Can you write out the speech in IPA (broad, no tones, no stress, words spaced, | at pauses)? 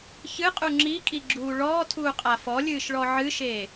çɨqʼu ŋ͡ǁikʼiɡ͡ǁuː ɭɔːtʰuːqʼa fɔlʲɨːʃɭɔ ʕɨʃeː